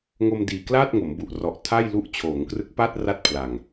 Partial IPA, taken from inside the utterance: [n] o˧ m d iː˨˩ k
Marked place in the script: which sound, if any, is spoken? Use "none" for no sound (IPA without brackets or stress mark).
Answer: ŋ